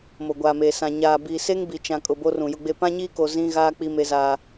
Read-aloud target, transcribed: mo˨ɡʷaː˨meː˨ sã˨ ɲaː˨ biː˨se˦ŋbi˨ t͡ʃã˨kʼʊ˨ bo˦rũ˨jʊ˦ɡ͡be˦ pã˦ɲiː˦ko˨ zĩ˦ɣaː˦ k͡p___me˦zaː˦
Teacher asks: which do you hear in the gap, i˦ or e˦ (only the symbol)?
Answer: i˦